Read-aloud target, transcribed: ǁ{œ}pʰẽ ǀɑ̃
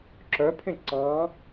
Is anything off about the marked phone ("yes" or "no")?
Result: no